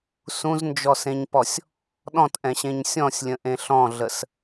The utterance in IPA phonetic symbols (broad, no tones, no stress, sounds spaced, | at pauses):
s ũ z n d͡ʒ ɔ s ẽ ɲ p ɔ sʲ | ɗ ɔ̃ t ʔ ɛ̃ ɕ ẽ ɲ sʲ ɔ̃ sʲ lʲ ə̃ ʔ ẽ ɬ ɔ̃ ɮ ə s